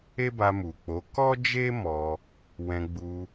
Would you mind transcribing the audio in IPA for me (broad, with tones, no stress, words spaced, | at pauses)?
e˦ba˧mu˨k͡po˨˦ kɔ˦d͡ʒe˦ mɔ˧ | wɛ̃˧ɡ͡bu˧